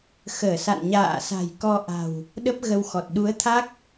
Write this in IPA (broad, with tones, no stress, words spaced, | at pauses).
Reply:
xəː˧˩sa̰˧˨n ɲa̰ː˧˨sa̤˨˩jkɔ˧ʔa̤˨˩w | ɗə˦˥p̚ ɣə˧wxɔ˨˩t̚ ɗu˨˦ə̯t̪ʰa˦˥k̚